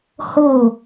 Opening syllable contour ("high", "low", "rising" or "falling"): falling